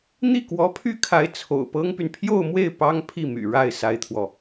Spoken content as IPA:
n̪i˥˩kwɔ˧˥pʰy˥kʰa˧˥ɪ̯ t͡sʰo̰˨˩ʊ̯pɤ˥ŋpy˨n pʰjo˥˧ʊ̯mwe˥˩ɪ̯ pɑ˥ŋ pʰi˥˩my̰˨˩ ɻa˥˩ɪ̯ sa˥ɪ̯t̪ʰwɔ˨

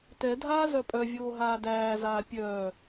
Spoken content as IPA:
tɛdʱaː zœpʼœvʲoː ɦaːdæːzaː pʲœː

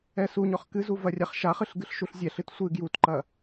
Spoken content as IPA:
ɛsuɲɔχ kɨzu vɐrʲaχʃaχɨɬ ɡɨɬʃuɬzʲɛɬɨt sʷɨ ɡjutǃɐ

